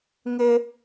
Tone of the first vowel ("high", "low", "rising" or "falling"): high